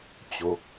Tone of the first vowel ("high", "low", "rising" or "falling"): rising